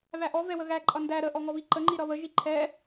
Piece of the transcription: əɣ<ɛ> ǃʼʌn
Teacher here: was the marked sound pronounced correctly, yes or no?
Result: no